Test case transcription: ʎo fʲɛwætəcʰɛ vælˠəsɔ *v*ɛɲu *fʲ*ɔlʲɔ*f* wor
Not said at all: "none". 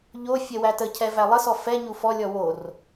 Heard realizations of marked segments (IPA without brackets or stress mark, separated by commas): f, f, none